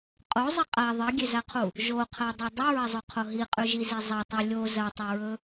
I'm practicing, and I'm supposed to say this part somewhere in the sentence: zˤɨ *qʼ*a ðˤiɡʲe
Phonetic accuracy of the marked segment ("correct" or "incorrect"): correct